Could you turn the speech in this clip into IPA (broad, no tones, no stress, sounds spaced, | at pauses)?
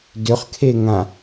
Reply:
d ʏ χ kʰ e ŋ ã